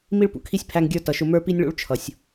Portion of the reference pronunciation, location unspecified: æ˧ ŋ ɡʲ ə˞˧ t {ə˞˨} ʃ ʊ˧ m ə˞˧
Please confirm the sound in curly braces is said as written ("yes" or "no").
no